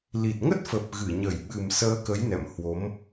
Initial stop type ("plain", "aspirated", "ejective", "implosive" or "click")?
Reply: plain